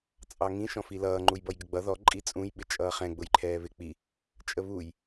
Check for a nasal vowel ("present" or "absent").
present